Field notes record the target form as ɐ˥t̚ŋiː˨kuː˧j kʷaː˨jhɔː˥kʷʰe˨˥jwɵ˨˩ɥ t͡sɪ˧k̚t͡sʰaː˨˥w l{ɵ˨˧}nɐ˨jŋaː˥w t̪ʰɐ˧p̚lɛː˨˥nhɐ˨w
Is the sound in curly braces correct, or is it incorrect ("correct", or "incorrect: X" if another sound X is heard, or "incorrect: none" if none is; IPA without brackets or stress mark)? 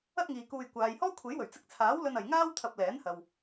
incorrect: ɵ˧